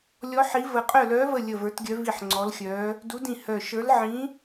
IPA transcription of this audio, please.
lʲ ɔ˧˥ ħ i˧˥ v ə˦˨ qʼ œ˦˨ l œː˧˥ v ə˦˨ lʲ ə˦˨ v ə˞˧˥ t ɡʲ œ˧˥ v i˦˨ ħ ŋ͡ǀ ɔ˧˥ l xʲ œː˧˥ | d u˧˥ d ĩ˦˨ h œ˦˨ ʃ ə˞˧˥ l ʕ ĩ˧˥

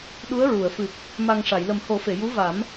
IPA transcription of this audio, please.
ɗ u˧˥ ə̯ ɹ u˨˩˨ ə̯ f ɨ˨˩ p̚ | m a˨˩ ŋ ʂ a˨˩˨ j l ə˨˩ m h o˨˩˦ f e˨˩˨ j u˧˥ v a˨˩˦ m

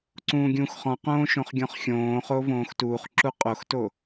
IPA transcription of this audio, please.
ǀ ũː ɡʲ ũː x χ ɔ̃ q õː ʃ õ χ ɡʲ ɔ̃ χ xʲ õː χ o v õː x t uː χ ǁ u qʼ o x t o

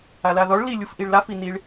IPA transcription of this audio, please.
a l a ð ɔ ɭ l i lʲ u f ʔ i ɭ l a f i n i ɭ

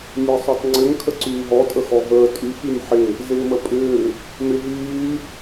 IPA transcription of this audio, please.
nʲ ɛ sˤ o tˤ ŋ͡ǀ ʏ ŋ kʰ ə ǀ yː ɦ ɔ tʼ ə x ɔ ɦ əː tʼ y x y m ħ ɪ | z ɪː m ə pʼ ʏː | m ɪ ɦ yː

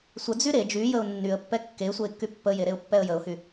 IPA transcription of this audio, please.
sʷ ə d͡z y ɾ e d͡ʒ y j ə ʊ̯ nː y ə̯ pː ɛ kː e sʷ ə ɪ̯ kː y pː ə j e ɾ e ʊ̯ pː ɛ ə̯ j ə ʊ̯ h y

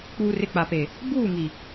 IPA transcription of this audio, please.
k͡p uː˨ r ɪ˨ k͡p a˨ p e˨ | b uː˦˨ ŋ i˨

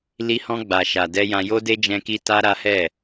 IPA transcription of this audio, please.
l i˧ h ɔ̃˧ ɡ͡b a˨ ʃ a˨ d ɛ˧ j ã˧ j o˦ d e˦ d͡ʒ ɛ̃˦ k i˦ t a˦ ɾ a˦ h ɛ˦˨

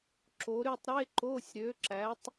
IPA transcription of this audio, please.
ǁ o˨˥ ɾ y˦˨ tˤ ɾ e˧˥˧ ǃ o˧˥˧ sʲ ɾ ø˨˥ ǁ æ˨˥ tˤ

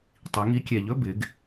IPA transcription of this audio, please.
tˤ i˩˧ ŋ i˨˥ kʲ ɛ˨˩ ʎ ɵ˧˥˧ b ɪ˩˧ ɡ

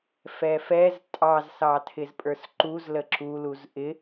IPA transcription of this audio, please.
f ɛ f ɛ z tʼ ɑ z s ɑ tʰ ɪ z pʼ ə˞ s ǃ u z l ə ǁ u l u z ʔ ɪ

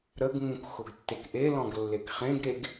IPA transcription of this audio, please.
ɾ ə ɡ ŋ ũ k x ʊ ɡ tː e k ʔ e l ɔ̃ ɡ lː e k χ ẽ ɡ ɾ e ɡ

